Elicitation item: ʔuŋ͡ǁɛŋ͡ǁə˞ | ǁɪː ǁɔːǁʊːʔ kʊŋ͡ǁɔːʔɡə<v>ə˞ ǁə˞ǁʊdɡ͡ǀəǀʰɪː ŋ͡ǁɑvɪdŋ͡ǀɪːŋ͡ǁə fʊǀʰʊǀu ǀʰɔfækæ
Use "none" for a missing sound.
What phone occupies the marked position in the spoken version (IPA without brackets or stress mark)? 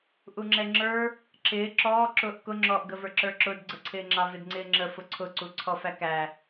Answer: v